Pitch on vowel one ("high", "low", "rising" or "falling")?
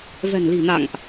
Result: low